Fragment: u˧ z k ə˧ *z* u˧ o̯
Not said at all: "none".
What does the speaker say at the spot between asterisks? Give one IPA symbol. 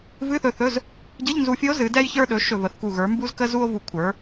z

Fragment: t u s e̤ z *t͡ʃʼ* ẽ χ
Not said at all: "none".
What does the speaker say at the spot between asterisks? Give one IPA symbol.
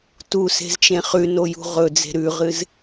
t͡ʃ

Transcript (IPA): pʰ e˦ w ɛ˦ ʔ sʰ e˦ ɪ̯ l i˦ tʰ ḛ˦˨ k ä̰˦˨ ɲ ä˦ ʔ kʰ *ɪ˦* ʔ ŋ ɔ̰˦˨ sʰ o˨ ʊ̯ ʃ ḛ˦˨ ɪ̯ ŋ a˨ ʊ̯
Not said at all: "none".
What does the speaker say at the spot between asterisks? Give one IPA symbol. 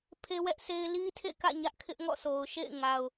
ɪ˦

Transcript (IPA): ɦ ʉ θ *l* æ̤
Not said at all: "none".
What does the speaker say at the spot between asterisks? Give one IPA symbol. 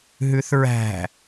ɹ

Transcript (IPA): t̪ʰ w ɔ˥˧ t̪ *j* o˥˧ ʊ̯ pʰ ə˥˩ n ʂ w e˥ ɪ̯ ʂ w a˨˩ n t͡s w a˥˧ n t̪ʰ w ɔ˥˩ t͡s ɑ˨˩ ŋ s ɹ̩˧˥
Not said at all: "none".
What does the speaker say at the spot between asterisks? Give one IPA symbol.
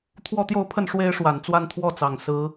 j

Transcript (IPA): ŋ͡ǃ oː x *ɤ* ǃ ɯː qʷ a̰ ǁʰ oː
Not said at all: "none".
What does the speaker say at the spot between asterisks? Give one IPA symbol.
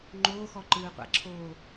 ɔ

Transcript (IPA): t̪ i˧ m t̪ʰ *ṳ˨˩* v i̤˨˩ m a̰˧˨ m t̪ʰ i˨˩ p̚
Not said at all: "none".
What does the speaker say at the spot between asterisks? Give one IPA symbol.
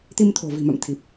o̤˨˩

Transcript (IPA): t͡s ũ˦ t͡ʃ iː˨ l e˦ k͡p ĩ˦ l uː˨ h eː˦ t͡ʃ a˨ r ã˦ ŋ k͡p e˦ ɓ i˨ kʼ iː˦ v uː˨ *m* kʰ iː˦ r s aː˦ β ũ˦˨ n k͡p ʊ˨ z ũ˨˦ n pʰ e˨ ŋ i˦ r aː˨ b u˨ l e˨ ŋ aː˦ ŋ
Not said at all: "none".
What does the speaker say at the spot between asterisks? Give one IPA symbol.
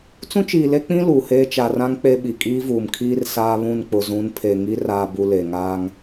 m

